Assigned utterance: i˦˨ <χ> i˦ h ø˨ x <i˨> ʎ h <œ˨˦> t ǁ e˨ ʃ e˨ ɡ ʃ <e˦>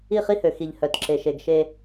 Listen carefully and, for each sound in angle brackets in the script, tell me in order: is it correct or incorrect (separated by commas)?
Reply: correct, correct, incorrect, correct